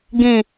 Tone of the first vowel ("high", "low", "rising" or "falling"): low